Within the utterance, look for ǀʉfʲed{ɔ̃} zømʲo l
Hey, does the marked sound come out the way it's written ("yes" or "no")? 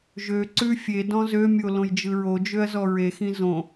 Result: yes